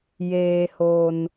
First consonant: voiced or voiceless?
voiced